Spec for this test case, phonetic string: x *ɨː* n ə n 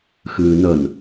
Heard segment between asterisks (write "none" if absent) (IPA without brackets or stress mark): ɨː